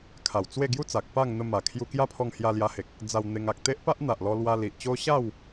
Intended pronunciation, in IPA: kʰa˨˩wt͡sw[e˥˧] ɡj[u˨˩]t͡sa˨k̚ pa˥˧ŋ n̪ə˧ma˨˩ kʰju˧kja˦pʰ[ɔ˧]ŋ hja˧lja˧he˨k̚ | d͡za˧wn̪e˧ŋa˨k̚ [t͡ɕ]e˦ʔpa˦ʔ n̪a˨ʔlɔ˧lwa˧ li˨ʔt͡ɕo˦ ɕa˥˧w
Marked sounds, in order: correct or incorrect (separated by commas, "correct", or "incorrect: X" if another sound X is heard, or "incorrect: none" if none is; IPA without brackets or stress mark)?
correct, incorrect: u˦, correct, incorrect: t̪